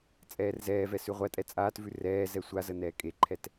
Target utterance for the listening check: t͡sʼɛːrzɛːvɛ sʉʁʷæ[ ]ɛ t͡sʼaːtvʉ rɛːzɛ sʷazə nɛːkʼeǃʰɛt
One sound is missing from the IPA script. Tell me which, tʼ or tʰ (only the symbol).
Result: tʼ